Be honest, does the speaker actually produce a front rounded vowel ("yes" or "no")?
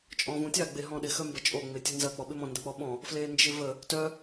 yes